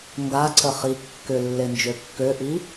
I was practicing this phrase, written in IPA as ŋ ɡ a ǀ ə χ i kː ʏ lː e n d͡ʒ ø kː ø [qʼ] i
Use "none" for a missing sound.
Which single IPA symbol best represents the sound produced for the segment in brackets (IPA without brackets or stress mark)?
ʔ